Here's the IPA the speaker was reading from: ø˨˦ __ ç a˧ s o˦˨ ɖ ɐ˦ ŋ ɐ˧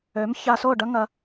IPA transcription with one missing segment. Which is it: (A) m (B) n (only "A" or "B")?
A